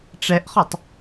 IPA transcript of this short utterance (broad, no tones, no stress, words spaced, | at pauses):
ʈ͡ʂɛʔχɔtˤ